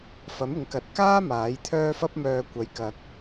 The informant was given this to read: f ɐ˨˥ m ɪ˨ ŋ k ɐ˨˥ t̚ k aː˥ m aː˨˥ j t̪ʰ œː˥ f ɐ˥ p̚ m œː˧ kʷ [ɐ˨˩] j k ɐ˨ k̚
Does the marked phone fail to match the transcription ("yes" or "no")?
yes